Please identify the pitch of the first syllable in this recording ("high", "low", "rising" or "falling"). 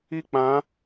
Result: high